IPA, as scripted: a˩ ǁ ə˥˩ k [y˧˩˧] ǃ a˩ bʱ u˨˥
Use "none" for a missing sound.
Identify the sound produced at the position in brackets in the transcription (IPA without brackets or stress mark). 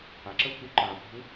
y˧˩˧